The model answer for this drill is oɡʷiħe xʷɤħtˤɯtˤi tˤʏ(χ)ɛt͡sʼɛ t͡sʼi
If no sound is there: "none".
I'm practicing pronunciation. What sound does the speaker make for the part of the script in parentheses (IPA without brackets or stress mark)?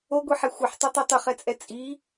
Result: χ